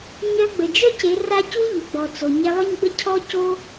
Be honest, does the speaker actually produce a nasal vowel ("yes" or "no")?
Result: no